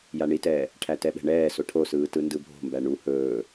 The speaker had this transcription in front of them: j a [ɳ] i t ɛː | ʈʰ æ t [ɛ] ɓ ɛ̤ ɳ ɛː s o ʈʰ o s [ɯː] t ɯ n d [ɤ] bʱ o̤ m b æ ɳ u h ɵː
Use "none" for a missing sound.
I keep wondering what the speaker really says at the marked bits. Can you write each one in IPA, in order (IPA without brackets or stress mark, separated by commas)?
ɳ, ɛ, ɯː, ɯ